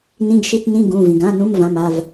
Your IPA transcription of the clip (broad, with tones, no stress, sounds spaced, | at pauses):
n ĩ˧˥˧ ɡ ʃ i˧˥˧ t n ĩ˧˥˧ ɡ ũ˩˧˩ v ĩ˩ ɡ ã˧˥˧ n ũ˧˥˧ m v ã˩˧˩ m a˩˧˩ v